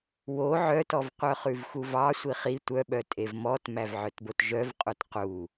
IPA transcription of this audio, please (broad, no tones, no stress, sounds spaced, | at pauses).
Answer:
w o ʕ œ t ɔ v qʷ œ χ ʉ v x u v ɑ sʷ i χ i tʷ œ ɓ œ tʼ e v m ɔ t m æ v ʕ œ t b o t ʒ œ v qʼ u t q u